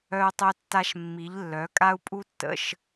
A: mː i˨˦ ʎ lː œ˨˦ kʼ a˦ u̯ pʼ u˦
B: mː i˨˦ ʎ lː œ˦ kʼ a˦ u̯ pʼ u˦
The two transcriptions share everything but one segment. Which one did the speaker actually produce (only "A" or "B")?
A